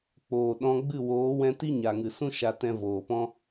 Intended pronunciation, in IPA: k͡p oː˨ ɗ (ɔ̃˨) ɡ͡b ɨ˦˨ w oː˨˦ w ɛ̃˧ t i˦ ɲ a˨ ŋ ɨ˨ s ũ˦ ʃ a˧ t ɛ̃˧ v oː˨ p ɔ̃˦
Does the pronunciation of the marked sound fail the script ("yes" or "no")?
yes